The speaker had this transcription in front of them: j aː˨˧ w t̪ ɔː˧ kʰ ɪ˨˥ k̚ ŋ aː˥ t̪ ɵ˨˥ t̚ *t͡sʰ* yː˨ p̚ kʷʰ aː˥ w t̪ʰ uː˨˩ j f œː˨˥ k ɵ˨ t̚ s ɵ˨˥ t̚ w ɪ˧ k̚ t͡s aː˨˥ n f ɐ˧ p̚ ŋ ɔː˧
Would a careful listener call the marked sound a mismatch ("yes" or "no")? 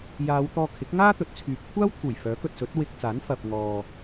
no